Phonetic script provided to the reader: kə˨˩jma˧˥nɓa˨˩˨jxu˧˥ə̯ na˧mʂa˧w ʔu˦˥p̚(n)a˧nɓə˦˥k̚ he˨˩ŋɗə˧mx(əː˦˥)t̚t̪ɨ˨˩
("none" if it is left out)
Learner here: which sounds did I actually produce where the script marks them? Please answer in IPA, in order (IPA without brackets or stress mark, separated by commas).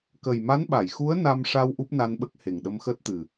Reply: n, əː˦˥